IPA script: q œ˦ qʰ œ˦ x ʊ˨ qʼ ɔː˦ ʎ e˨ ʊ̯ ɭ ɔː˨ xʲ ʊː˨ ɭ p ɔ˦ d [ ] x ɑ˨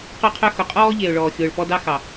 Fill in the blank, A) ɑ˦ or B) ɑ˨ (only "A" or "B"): A